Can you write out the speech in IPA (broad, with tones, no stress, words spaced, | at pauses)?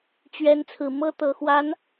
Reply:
t͡ɕɥɛ˧˥n t͡sʰɹ̩˨˩mɤ˥t̪ɤ˨˩xwa˧˥n